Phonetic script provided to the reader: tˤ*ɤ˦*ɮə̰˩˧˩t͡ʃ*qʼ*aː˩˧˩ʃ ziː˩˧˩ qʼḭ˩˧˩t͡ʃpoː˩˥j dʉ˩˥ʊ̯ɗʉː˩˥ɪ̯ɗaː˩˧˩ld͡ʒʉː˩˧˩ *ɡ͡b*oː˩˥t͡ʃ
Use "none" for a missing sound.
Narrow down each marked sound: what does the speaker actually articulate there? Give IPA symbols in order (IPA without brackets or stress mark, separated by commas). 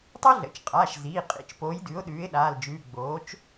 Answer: o˦, qʼ, ɡ͡b